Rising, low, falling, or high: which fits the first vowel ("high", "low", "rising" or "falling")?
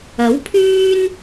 rising